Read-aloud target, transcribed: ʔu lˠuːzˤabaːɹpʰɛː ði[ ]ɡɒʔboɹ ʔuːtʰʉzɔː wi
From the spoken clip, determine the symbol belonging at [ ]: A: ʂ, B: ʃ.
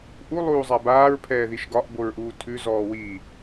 B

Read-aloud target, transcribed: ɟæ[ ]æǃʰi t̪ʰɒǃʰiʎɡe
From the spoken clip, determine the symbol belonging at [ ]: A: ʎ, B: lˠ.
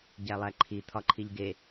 B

